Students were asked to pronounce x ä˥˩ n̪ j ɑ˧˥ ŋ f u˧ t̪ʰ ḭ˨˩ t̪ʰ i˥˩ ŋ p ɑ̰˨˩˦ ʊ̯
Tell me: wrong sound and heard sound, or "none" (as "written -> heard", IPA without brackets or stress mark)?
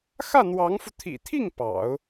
j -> w